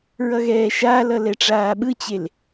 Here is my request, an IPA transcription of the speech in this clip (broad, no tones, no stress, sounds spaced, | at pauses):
ɹ ʌ ɣ ɛː ʃ a l ʌ l ɛ ʈ͡ʂ aː ɓ ɯ t͡ɕ e l